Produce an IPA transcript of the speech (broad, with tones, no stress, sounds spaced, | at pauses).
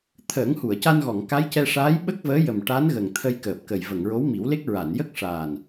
t̪ʰ əː˨˩˦ ŋ h u˨˩˨ ə̯ c a˧ n ɣ ɔ˨˩˨ ŋ k a˧˥ j c ɛ˧ ʂ aː˧˥ j ɓ ə˦˥ k̚ v əː˧˥ j ə˨˩ m ʈ a˧˥ n ɣ ə˨˩ ŋ t̪ʰ ə˧ j k əː˨˩ p̚ k ə˨˩ j v ə˨˩˨ ŋ ɹ o˧˥ w m i˨˩˦ w l e˦˥ k̚ ɹ a˨˩˨ n j ə˦˥ k̚ ʂ aː˨˩ n